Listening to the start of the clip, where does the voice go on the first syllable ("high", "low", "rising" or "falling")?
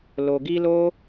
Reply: low